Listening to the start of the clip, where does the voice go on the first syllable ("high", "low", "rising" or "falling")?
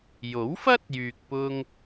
rising